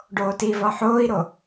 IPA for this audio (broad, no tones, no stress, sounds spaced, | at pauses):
ɖ oː t i v ɒ ħ oː i̯ ɾ o